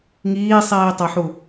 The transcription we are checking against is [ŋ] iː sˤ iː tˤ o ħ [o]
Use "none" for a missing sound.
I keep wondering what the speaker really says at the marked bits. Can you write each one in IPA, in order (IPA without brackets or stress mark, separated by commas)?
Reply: ŋ, u